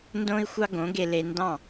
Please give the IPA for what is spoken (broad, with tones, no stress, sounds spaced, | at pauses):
n d õ˦ i̯ xʷ ɑ˦ ɡ õ˨˦ ɡ e˧ l e˧ n d ɑ̃˦˨